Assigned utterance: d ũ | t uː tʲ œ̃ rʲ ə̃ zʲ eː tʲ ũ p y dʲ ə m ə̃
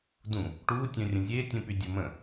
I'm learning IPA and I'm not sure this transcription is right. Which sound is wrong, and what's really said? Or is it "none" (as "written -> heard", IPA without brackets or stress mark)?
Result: t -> ʈ